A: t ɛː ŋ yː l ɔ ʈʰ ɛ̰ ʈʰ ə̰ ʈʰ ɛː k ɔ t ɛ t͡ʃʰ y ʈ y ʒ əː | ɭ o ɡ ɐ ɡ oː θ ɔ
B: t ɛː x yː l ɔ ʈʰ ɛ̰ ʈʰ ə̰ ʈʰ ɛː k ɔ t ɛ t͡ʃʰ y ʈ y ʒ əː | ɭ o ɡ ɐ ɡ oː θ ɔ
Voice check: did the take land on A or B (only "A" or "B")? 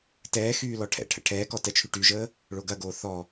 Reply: B